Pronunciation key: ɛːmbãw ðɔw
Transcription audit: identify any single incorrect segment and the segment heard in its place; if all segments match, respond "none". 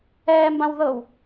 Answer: ɔ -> ɤ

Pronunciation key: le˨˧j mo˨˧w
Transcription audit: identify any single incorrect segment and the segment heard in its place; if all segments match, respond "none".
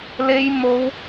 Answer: none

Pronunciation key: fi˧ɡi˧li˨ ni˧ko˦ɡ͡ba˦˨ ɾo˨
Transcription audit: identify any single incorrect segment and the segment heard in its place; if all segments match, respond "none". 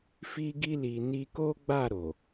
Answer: none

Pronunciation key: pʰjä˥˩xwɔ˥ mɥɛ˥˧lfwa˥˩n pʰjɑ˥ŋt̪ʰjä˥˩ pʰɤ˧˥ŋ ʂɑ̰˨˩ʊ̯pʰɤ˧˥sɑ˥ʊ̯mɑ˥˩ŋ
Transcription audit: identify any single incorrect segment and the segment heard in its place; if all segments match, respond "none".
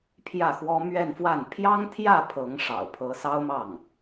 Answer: l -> n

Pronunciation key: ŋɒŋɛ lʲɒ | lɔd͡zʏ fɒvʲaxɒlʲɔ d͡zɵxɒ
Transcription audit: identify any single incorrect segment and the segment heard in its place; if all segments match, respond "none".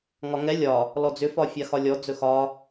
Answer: vʲ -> fʲ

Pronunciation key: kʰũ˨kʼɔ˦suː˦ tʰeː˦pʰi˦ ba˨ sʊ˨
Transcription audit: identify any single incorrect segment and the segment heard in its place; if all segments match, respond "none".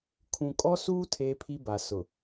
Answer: none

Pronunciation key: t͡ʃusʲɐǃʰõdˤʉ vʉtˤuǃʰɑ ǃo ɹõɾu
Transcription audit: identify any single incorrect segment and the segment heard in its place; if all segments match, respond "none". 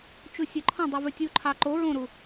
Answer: tˤ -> tʲ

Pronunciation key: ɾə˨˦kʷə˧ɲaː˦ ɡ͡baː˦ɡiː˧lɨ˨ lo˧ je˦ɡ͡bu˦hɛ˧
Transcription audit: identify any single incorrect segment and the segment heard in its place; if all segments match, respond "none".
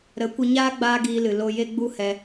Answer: none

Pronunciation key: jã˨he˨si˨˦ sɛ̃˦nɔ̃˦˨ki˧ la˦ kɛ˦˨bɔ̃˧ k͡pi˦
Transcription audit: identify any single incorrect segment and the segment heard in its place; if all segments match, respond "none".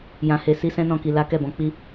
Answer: none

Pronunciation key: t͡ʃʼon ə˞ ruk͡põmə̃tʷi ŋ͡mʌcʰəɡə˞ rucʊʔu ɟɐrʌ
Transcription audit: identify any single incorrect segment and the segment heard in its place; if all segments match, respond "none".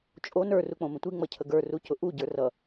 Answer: ɐ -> ə˞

